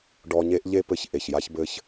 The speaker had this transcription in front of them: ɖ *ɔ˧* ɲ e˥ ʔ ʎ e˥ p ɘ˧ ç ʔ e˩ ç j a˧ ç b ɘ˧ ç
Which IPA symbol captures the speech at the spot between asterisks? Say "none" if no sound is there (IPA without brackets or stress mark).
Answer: ɔ˧